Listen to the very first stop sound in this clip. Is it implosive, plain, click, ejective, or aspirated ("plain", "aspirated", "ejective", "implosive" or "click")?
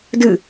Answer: plain